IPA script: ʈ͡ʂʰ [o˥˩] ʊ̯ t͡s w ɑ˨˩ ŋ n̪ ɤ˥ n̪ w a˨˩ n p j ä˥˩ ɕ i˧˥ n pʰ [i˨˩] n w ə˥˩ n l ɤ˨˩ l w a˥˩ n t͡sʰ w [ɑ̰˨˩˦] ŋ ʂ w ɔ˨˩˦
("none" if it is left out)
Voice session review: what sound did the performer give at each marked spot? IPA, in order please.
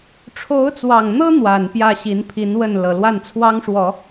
o˧˥, i˧˥, ɑ˥

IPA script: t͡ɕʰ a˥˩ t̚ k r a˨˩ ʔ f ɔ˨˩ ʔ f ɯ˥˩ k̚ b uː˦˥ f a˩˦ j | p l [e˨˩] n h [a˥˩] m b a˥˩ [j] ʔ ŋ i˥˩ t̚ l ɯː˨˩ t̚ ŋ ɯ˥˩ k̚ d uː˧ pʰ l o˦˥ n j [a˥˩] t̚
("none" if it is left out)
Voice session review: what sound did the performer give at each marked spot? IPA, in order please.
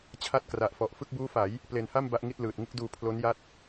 e˨˩, a˥˩, none, a˥˩

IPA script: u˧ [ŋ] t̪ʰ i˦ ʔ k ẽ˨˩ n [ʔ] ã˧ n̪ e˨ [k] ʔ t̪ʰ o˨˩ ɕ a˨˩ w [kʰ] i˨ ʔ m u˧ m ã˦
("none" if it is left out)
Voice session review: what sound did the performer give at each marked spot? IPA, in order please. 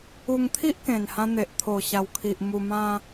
ŋ, h, none, kʰ

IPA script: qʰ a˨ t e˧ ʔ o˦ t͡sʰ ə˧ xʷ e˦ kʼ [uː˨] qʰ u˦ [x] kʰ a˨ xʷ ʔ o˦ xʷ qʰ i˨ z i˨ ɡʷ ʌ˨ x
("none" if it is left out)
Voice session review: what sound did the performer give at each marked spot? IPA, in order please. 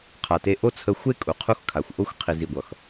u˨, x

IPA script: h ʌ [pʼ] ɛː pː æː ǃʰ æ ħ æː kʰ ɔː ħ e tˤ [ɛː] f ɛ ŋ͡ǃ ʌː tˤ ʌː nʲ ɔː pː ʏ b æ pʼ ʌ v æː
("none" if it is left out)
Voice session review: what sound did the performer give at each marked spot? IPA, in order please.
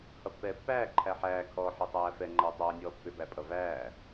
pː, æː

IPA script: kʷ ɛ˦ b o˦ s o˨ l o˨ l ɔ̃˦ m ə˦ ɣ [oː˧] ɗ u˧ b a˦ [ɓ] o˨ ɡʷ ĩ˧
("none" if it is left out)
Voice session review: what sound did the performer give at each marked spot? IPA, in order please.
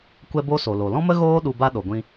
oː˦, ɗ

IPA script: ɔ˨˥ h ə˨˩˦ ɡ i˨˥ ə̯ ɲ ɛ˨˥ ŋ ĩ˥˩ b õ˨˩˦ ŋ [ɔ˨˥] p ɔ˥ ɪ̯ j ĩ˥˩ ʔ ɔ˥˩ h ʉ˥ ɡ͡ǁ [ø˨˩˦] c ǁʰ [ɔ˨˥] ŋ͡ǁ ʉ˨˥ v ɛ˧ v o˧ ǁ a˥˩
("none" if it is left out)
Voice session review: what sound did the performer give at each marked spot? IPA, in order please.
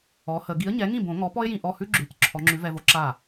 ɔ˨˥, ʉ˨˩˦, ɔ˨˥

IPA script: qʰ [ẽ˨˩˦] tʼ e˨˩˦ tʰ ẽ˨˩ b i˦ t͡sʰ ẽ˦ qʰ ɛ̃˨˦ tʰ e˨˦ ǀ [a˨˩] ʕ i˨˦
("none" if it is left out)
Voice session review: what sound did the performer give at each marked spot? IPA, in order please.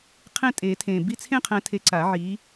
ẽ˦˨, a˨˩˦

